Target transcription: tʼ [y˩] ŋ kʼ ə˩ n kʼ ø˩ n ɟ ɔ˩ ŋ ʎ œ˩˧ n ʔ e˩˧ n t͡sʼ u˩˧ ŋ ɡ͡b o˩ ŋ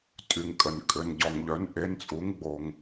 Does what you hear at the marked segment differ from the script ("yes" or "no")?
no